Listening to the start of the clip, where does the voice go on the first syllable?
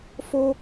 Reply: high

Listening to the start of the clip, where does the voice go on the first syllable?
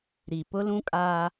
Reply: low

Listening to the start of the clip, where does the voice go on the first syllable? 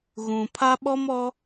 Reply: low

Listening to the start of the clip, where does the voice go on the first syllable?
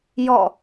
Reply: falling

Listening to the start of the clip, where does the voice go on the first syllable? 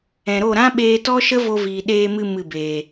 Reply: low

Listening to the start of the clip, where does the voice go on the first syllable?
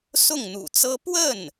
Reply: falling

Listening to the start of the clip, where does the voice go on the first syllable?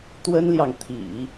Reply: high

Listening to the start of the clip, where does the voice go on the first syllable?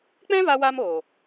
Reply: high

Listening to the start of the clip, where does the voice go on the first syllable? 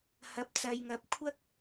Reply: high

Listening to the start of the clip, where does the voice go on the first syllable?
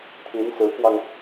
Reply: rising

